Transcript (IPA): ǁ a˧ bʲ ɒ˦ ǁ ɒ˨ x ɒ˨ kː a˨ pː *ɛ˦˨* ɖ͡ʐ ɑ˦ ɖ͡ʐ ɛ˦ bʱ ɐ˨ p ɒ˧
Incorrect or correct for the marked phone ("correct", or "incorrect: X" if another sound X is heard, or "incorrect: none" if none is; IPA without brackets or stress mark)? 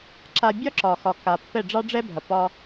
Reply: correct